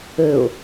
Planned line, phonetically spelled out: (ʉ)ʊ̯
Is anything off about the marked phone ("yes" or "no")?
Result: yes